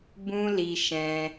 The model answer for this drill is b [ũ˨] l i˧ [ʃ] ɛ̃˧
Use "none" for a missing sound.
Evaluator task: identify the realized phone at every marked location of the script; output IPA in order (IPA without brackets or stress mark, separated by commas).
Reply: ũ˦, ʃ